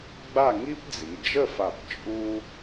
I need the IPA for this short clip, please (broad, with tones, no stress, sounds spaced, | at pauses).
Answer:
ɡ͡b a˥˧ ŋ i˥ p d͡z i˩˧ d͡ʒ ə˥˧ f a˧˩ p t͡ʃʼ u˥